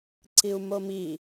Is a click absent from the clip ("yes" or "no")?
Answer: no